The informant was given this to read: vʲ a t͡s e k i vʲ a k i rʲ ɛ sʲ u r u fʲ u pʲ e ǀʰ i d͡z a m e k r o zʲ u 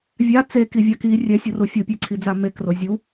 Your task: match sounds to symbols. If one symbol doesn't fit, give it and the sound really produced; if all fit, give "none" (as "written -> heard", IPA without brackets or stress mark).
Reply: none